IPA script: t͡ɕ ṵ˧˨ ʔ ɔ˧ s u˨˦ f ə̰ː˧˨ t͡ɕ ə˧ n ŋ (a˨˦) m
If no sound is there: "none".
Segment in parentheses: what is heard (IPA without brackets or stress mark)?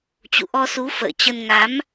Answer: a˨˦